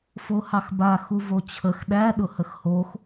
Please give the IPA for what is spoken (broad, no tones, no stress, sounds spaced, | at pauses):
f o h ɑ x b a x u v o t͡ɕʰ ə x ɗ æ ɗ ʊ h ə x h o x